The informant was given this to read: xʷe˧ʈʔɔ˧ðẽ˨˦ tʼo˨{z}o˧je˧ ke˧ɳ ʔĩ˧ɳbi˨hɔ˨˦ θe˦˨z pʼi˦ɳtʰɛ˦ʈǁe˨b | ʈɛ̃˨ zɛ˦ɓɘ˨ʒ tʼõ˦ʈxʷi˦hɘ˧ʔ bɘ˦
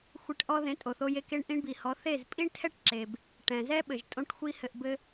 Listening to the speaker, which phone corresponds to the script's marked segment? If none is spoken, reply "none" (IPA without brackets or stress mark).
θ